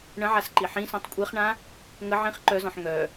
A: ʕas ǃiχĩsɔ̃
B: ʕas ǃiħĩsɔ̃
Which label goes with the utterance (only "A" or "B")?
B